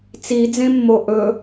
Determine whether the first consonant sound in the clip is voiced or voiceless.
voiceless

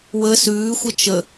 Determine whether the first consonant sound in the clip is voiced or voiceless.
voiced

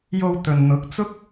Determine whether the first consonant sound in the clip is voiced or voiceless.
voiced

